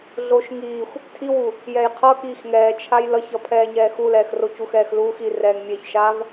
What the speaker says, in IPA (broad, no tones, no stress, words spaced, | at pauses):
ɮoʃ ŋiːxʷ | tʰiwu | jɛjqʰʌkiːx ŋɛːt͡ʃʰaj lʌçʌ pʰɛːɲɛːxulɛːx rocuxɛːxluːx i rɛːŋmʲeçʃaːv